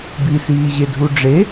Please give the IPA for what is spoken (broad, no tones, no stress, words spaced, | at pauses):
bisiːʑedʱu ɖ͡ʐe